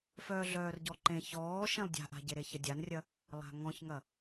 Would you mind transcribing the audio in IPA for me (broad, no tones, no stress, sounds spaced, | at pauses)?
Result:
f œː ɮ œː r ɟ ɔ ǃ ẽ ç ɔː ʃ ẽ lˠ dʲ a̤ ʔ a̤ ɟ e ɾ e ç ɐ dʲ a n rʲ ɐ | lˠ a̤ ŋ ɔ̃ ç ŋ ɐ